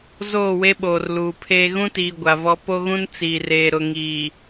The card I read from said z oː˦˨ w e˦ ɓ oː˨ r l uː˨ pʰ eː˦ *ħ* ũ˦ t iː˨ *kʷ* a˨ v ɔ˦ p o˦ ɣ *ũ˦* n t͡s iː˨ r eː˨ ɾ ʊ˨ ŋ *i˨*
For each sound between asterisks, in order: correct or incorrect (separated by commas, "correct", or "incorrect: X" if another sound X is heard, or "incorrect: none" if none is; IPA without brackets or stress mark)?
incorrect: ɣ, incorrect: ɡʷ, correct, incorrect: iː˨